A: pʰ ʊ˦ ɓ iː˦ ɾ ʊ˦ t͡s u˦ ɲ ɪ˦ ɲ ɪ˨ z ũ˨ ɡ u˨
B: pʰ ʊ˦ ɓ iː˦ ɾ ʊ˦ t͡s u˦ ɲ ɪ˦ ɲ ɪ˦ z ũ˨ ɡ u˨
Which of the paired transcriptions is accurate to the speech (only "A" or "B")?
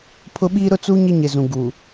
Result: A